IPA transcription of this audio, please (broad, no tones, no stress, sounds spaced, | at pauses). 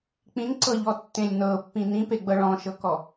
k͡p ĩ n ǀ ɤ ʎ ɔ tː ẽ lʲ n ɤ pː ĩ n ĩ p e ɡ͡b ɤ ɭ ɔ̃ ʃ ɤ k ɔ